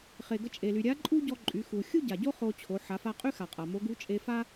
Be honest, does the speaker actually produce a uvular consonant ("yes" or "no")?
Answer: yes